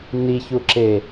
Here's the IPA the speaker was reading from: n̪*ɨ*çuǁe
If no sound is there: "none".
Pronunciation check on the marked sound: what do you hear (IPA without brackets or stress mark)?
i